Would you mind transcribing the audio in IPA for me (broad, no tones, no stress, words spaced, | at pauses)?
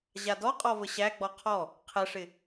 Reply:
ʑadɔ qʼɔvəɕæ ɡ͡bɔqʰɔ | qʰɛʂɪ